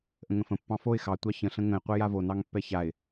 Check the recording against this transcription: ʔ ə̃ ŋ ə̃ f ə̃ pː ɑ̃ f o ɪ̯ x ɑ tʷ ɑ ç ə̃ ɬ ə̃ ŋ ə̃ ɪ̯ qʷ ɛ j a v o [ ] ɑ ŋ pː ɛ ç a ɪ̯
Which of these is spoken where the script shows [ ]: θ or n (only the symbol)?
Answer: n